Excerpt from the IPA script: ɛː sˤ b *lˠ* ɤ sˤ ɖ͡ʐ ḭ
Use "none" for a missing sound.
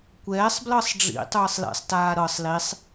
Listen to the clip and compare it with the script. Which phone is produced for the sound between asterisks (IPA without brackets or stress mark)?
l